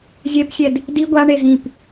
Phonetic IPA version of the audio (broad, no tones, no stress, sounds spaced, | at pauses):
zʲ ɛ p sʲ ɛ d | d i ɡʷ a ɳ e z ĩ p